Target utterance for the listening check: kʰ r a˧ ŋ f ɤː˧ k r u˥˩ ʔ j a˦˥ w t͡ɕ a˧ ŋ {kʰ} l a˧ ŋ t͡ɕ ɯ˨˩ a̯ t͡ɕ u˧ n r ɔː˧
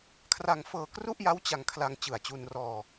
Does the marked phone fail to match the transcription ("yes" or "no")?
no